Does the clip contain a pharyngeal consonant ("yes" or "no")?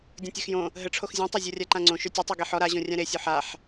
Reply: yes